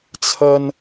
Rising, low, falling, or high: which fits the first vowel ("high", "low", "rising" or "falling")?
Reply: high